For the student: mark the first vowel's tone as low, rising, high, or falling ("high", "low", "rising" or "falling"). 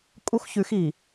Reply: high